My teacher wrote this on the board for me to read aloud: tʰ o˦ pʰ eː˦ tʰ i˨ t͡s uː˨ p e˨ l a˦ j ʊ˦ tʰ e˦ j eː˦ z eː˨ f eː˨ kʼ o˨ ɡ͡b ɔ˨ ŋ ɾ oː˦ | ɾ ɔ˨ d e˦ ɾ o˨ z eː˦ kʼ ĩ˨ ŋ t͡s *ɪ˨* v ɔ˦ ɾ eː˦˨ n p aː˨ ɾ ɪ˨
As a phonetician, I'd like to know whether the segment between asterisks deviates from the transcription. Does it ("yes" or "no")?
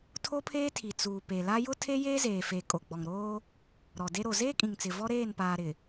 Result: no